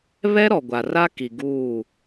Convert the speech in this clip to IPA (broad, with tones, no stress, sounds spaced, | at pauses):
β ɛ˦ ɾ ɔ˨ ɡʷ a˨ r a˦ k i˨ ɡ uː˦˨